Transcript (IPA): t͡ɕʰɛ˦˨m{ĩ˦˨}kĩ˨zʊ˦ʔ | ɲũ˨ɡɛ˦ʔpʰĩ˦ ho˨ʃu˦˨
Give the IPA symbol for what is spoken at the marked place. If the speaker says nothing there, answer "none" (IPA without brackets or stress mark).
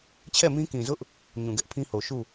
ĩ˦